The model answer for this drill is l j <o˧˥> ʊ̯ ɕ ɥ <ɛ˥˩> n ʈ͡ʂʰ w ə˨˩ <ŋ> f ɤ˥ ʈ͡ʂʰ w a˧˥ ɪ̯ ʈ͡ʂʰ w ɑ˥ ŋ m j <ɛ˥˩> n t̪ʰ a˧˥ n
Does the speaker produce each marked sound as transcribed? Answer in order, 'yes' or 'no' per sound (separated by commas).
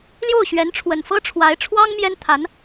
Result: no, no, no, no